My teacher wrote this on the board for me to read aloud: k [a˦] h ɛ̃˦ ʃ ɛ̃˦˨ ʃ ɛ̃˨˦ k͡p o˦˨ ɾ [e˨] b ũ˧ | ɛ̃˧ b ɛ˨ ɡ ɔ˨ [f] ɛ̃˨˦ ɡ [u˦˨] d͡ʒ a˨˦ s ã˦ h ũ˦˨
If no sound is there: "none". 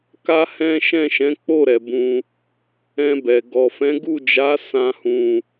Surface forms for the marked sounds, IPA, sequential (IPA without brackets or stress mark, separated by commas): a˦, ɛ˨, f, u˦˨